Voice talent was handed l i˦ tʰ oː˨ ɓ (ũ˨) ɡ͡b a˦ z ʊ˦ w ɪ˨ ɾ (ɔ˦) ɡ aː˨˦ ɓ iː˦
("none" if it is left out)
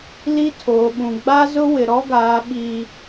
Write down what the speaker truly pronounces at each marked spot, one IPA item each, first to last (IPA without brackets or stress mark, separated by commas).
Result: ũ˨, ɔ˦